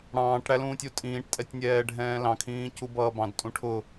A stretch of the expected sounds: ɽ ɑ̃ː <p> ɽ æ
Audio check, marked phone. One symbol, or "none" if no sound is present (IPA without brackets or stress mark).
ʈ